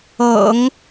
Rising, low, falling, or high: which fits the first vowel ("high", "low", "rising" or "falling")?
low